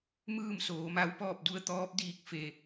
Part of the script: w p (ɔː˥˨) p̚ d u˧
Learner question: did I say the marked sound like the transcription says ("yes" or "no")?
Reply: yes